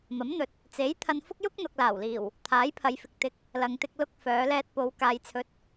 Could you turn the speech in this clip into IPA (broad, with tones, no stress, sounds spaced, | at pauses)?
m ɐ˨˥ m n̪ ɵ˨˥ t̚ | t͡s e˨˥ j t̪ʰ ɐ˧ n f ʊ˥ k̚ j ʊ˥ k̚ n̪ ʊ˨ k̚ l aː˨˩ w l iː˨˩ w | t̪ʰ aː˨˥ j pʰ ɐ˨˧ j f ɪ˨ k̚ t̪ ɪ˨˥ k̚ | l ɐ˨ ŋ t̪ ɪ˧ k̚ l ʊ˧ k̚ f œː˨˧ l ɛː˧ t̚ p o˨˧ w k aː˨ j t͡sʰ ɵ˨˥ t̚